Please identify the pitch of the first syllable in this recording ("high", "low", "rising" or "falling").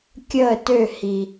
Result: falling